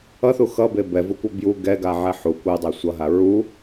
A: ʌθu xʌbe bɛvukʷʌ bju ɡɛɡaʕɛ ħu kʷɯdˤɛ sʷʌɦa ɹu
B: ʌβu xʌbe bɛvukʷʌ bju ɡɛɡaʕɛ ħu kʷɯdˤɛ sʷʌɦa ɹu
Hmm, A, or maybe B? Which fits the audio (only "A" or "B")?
A